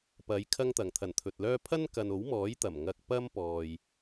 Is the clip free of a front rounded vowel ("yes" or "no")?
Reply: no